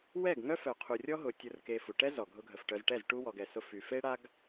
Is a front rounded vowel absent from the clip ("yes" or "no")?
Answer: no